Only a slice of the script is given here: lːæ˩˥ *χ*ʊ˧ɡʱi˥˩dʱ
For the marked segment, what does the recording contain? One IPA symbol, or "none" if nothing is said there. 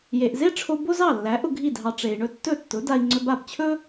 ʔ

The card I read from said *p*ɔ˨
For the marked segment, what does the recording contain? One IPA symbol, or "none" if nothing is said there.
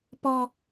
p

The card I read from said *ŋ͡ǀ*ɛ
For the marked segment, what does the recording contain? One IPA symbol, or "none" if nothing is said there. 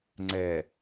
ŋ͡ǀ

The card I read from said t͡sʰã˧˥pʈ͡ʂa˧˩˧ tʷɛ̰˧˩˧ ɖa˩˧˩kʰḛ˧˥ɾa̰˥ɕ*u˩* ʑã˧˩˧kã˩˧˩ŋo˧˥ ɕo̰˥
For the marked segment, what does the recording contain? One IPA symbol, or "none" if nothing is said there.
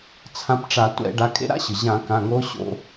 ɯ˩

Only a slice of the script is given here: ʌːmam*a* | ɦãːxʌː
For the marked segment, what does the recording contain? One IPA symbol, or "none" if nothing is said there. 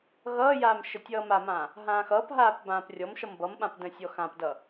ã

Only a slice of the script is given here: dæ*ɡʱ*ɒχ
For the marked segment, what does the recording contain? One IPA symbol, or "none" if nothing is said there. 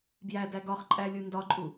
ɡ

